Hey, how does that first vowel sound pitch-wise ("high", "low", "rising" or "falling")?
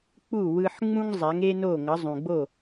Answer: falling